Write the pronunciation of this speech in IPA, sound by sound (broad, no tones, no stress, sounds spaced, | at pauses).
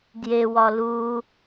d j e w ɒ l u